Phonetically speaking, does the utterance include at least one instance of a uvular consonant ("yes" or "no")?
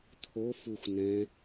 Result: no